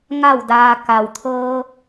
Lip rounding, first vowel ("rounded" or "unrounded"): unrounded